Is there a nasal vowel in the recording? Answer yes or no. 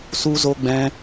yes